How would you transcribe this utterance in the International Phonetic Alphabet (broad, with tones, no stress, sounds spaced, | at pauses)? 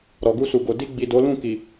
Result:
ɾ ɔ˨ ɡ u˧ s u˨ ɡ o˨ d i˧ ɡ͡b i˨ d o˨˦ l ũ˦˨ k i˨